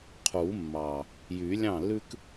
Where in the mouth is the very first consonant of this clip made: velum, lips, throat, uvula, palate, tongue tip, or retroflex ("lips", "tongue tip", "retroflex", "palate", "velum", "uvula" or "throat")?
uvula